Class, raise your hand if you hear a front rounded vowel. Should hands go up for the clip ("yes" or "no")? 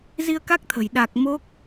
no